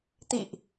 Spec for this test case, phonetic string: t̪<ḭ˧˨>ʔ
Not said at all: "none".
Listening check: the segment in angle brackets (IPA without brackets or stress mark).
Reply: ḭ˧˨